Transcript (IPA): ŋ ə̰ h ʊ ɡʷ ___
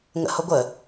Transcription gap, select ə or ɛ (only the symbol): ə